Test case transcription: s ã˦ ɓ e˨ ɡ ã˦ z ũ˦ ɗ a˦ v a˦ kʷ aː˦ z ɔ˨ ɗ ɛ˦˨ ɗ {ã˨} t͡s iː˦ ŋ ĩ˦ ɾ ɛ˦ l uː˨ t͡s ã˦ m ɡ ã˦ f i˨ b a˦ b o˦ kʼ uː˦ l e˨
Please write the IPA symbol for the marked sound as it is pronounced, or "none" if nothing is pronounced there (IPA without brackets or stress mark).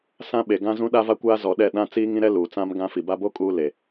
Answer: ã˦